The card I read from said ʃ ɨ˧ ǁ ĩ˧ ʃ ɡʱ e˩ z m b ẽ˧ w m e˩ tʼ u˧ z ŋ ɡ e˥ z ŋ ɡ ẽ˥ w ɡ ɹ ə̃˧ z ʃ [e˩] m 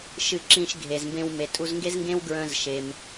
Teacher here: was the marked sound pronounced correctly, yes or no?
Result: yes